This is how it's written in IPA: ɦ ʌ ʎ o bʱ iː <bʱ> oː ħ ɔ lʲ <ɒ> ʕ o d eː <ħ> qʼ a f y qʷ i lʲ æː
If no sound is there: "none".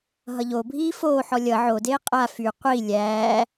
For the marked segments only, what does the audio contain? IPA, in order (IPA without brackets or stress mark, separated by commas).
f, ʌ, none